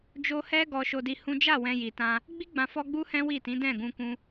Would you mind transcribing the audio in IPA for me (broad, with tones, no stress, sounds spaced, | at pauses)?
d͡ʒ o˧ h ɛ˦ ɡ ɔ˧ ʃ o˧ d i˧ h ũ˦ d͡ʒ a˦˨ w ɛ̃˧ j i˨ t ã˧ | ɡ͡b i˦ ɡ͡b ã˧ f ɔ˦ ɡ͡b u˦ h ɛ̃˦ w i˦˨ t ĩ˨˦ d ɛ̃˦˨ ɡ ũ˧ k ũ˧